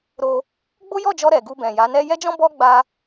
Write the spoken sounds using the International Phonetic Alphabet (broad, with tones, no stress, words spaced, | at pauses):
ɾo˧ | ɡ͡bo˦jɔ˦˨d͡ʒɔ˧ ɾɛ˨ ɡu˧ bɛ̃˨ja˨˦nɛ˦ jɛ˦d͡ʒɔ̃˦ bɔ˦ɡ͡ba˧